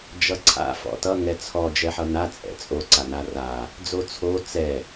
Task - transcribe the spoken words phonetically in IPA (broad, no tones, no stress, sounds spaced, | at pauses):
d͡ʒ ʌ ǀʰ a̰ f ɔ̰ t ʌ ŋ ɛ t͡sʰ ɔ d͡ʒ ɛ ħ ʌ n a t͡sʼ ɛ̰ t͡sʼ o ǀ a n a r a | d͡z o t͡sʰ o t͡s ɛ